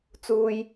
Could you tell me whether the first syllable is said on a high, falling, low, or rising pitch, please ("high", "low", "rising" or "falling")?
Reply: high